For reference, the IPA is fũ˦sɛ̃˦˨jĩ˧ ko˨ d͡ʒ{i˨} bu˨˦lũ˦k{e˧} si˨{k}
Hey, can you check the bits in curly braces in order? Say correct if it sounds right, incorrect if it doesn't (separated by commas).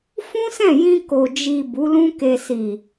correct, correct, incorrect